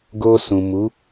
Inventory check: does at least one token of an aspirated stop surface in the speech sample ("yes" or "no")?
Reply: no